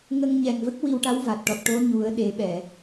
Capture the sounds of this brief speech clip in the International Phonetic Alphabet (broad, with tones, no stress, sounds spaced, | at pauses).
ŋ ə˧ ŋ ɲ ɛ˨˩ ŋ v ə˦˥ k̚ w i˧ w ʈ a˧˥ w v a˨˩ t̚ ʈ ɔ˨˩ t̚ ʈ o˧˥ ɲ u˨˩˦ ə̯ ɗ e˨˩˦ ɓ ɛ˨˩˨